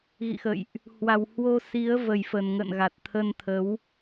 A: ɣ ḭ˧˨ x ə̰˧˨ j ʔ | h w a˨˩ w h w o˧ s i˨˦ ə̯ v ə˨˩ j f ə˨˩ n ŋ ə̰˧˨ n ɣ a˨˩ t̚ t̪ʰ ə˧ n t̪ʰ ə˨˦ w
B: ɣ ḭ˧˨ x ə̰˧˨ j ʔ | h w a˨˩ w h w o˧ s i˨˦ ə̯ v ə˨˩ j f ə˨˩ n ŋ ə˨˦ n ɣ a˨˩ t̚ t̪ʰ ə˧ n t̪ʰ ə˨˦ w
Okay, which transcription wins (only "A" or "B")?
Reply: A